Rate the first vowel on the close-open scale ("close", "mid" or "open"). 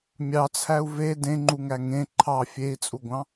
open